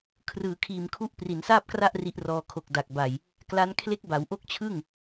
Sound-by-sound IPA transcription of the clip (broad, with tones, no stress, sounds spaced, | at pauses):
kʰ r ɯː˩˦ kʰ iː˨˩ m kʰ u˦˥ ʔ p r i˩˦ n s aː˥˩ p̚ k r a˥˩ ʔ r i˦˥ ʔ r ɔː˧ kʰ o˨˩ k̚ d a˨˩ k̚ b a˨˩ j | k l a˦˥ n kʰ l e˦˥ k̚ b a˩˦ w ʔ o˥˩ k̚ t͡ɕʰ ɯ˥˩ ŋ